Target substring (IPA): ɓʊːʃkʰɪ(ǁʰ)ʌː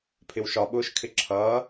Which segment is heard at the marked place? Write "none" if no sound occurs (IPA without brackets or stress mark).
ǁʰ